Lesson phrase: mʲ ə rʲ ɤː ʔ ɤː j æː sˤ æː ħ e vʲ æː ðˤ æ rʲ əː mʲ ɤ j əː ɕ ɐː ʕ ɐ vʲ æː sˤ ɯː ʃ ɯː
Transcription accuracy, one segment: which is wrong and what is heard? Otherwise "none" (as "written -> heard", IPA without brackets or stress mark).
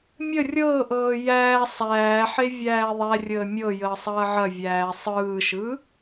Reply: ɕ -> sˤ